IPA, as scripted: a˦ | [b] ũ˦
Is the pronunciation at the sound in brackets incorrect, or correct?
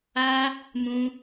incorrect